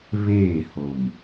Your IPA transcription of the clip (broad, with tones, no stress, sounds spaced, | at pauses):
β eː˦˨ h o˨ m